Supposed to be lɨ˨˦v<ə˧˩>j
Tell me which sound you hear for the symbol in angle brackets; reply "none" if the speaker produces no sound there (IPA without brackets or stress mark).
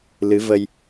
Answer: ə˧